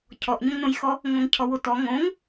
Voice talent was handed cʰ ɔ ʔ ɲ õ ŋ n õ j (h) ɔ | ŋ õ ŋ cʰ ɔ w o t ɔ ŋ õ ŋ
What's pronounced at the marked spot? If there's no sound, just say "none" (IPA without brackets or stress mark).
x